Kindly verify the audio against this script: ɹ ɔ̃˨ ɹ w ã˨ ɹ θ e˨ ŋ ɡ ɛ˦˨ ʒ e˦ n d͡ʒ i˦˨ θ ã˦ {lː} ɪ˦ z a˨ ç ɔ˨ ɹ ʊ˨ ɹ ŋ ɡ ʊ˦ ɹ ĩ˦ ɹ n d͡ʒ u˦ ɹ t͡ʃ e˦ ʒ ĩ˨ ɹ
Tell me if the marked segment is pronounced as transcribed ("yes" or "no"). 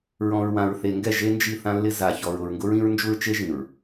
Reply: yes